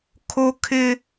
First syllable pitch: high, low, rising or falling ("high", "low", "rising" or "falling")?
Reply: high